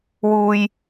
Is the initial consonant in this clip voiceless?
no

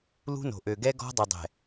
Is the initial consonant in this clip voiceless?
no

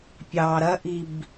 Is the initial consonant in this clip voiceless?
yes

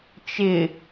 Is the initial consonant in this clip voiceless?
yes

